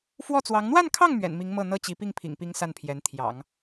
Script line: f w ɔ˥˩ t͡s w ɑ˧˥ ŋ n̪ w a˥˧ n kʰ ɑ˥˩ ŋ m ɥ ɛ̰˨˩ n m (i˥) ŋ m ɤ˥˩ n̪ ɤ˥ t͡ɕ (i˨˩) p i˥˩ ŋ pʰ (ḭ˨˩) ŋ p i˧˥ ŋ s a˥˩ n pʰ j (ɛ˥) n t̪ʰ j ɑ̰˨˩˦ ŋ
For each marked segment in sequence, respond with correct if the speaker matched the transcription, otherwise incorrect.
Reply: incorrect, incorrect, correct, incorrect

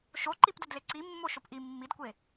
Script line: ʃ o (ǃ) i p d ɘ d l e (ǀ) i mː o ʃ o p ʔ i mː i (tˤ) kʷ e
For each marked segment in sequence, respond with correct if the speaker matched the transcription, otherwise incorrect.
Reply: correct, correct, incorrect

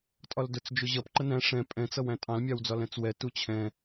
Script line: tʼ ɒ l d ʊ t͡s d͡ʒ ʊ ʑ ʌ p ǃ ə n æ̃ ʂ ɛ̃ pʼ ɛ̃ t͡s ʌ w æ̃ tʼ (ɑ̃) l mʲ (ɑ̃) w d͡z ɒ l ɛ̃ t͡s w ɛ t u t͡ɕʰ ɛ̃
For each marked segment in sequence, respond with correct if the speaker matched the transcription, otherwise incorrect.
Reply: correct, incorrect

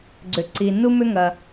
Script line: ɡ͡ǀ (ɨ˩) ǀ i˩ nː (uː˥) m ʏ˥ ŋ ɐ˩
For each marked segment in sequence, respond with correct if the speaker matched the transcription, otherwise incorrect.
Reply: incorrect, incorrect

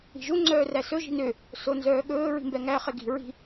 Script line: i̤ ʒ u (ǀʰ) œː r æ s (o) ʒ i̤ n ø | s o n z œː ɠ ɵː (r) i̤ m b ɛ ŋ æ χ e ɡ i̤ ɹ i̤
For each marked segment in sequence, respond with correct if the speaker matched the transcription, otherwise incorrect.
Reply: incorrect, incorrect, incorrect

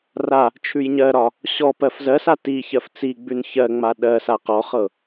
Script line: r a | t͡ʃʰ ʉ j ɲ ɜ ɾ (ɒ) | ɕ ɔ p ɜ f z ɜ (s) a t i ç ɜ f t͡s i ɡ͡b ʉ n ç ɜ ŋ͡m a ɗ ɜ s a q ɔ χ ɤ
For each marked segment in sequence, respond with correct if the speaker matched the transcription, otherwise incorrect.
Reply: correct, correct

